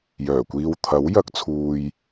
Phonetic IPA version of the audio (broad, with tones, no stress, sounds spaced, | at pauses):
j œː˨˩ kʷ iː˧ w t̪ʰ ɐ˨˥ w j ɐ˧ k̚ t͡sʰ uː˨ j